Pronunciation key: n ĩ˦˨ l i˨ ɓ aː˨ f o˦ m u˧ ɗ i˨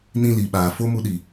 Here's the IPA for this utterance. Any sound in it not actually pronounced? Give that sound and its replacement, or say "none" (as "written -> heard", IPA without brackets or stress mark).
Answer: none